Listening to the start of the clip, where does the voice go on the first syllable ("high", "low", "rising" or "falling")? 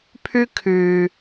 high